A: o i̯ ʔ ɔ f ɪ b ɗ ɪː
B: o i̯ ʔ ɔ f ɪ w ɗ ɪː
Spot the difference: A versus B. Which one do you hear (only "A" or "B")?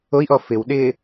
B